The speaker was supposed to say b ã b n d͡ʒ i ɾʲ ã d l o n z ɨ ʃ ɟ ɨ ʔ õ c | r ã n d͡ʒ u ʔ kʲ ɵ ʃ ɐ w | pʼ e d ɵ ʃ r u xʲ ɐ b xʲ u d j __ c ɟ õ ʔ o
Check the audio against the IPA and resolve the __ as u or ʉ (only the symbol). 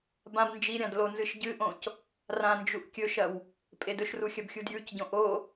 ʉ